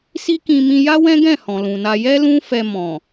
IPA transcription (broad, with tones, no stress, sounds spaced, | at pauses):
s i˦ k ĩ˧ m ĩ˧ j a˦ w ɛ̃˦ ɡ ɛ̃˦˨ h ɔ̃˨ l ũ˨ n a˧ j ɛ˦ l ũ˦ f ɛ˧ m ɔ̃˨